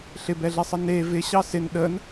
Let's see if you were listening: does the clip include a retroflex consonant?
no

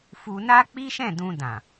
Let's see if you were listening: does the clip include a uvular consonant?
no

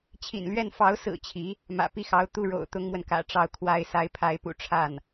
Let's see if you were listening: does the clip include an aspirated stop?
yes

